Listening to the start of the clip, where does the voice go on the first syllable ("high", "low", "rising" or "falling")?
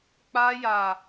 high